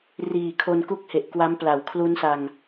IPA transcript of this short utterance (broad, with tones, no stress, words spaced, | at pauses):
riː˨˩kʰo˧nku˥˩k̚ he˨˩ʔkwa˦˥mpla˨˩w kʰlu˦˥nsa˧ŋ